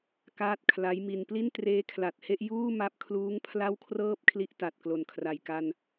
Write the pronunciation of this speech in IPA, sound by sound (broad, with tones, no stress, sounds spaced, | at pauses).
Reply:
k aː˥˩ t̚ kʰ l a˦˥ j m i˧ n p l i˥˩ n t r eː˦˥ kʰ l a˨˩ t̚ h e˥˩ ʔ j uː˥˩ m a˦˥ p̚ kʰ l uː˦˥ ŋ pʰ l a˥˩ w kʰ r ɤː˥˩ p̚ kʰ l i˦˥ ʔ t a˨˩ t̚ k l o˨˩ n kʰ r a˨˩ j k a˧ n